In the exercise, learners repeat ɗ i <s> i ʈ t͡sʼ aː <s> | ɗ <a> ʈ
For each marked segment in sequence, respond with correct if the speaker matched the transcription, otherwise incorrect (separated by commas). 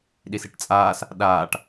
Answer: correct, correct, incorrect